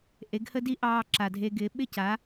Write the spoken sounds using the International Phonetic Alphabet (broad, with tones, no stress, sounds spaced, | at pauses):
ʔ e˨˦ ɡ h ə˦ d i˦ ʔ ɑː˧ ǁ a˨ dʱ e˧ ɡ ɪː˨˦ ɓ ɪ˦˨ c a˨˦